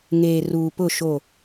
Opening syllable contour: low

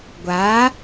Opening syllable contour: rising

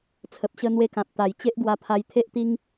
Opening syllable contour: low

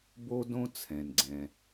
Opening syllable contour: high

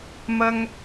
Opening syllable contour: high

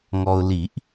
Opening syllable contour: low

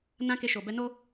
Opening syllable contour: high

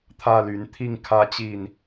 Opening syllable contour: falling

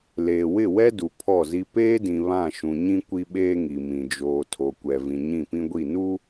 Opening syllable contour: low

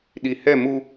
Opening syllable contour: low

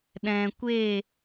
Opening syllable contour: low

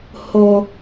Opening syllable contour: low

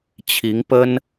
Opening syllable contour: rising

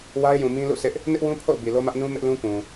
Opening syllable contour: high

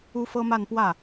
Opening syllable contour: high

